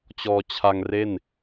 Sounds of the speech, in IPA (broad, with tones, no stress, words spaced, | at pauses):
t͡ɕɔː˧t͡ɕʰa˧ŋ re˥˩n